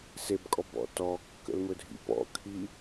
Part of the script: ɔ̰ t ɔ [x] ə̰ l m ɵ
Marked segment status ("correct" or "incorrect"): incorrect